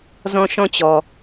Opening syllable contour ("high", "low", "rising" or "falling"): high